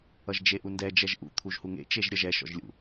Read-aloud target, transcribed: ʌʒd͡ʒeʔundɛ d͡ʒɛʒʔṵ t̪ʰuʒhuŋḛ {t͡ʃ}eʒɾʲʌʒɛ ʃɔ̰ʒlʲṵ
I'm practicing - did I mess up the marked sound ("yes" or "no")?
no